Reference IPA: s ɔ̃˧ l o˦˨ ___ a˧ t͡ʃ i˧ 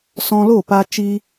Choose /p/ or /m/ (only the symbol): p